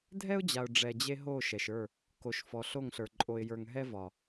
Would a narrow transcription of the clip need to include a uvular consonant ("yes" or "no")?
no